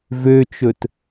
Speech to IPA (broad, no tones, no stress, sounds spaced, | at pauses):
v ø t͡ʃ ɵ t